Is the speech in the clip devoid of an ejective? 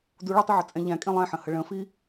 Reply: no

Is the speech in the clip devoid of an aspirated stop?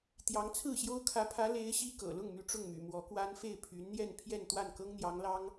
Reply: no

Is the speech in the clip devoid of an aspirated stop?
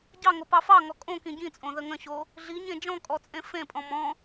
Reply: yes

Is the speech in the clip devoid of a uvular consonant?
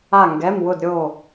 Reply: yes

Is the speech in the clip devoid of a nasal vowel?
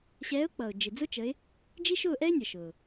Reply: yes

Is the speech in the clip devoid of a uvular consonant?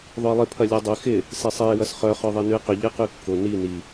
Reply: no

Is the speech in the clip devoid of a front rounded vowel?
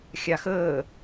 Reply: yes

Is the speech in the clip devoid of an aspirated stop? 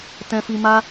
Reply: yes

